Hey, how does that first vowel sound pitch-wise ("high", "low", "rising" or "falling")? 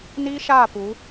high